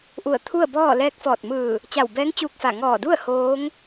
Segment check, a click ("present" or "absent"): absent